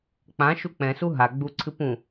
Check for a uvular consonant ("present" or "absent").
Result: absent